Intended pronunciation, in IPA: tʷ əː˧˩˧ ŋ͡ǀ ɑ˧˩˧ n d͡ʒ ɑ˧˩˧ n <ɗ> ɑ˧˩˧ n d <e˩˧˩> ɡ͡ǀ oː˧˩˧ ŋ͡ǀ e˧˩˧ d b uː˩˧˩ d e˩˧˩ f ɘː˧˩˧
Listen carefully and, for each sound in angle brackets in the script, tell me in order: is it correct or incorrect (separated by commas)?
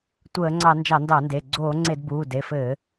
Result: incorrect, correct